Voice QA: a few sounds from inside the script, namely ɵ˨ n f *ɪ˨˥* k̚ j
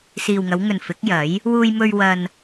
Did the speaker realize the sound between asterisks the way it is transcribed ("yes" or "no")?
yes